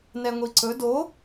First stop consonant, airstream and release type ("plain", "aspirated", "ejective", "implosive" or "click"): click